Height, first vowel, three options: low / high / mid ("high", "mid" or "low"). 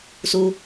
high